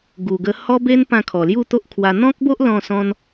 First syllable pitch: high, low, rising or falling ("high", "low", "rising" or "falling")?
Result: low